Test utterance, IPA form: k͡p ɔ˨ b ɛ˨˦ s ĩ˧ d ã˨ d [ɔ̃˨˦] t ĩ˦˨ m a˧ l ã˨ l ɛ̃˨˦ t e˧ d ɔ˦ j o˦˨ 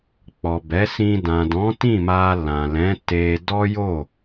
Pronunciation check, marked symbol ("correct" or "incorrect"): correct